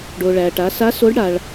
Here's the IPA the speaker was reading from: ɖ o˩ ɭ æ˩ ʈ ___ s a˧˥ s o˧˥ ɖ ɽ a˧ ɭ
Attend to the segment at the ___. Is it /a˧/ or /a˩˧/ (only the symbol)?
a˩˧